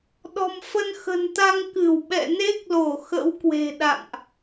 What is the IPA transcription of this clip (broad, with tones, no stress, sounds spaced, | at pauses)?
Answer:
ɗ ɔ̤˨˩ m f ə˧ n x ə̤˨˩ n t̪ a˧ ŋ k ɨ˧˩ w ɓ ɛ̰˧˨ n e˦˥ k̚ l o˧˩ x ə̰˧˥ w k w e̤˨˩ ɗ a̰˧˨ ŋ ʔ